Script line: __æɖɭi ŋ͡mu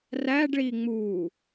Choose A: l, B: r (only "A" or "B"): B